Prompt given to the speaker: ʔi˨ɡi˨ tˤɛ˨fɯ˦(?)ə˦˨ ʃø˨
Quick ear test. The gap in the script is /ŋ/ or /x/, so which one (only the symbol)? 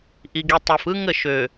ŋ